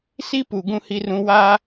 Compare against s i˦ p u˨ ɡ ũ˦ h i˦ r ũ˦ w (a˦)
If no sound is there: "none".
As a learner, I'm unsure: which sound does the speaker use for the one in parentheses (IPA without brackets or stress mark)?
aː˦